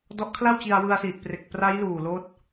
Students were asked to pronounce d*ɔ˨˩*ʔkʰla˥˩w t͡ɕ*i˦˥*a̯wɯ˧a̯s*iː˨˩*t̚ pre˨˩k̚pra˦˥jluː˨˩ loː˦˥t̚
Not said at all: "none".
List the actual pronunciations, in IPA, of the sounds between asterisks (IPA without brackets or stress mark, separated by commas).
ɔ˦˥, i˧, iː˨˩